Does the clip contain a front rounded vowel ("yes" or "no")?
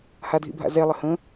no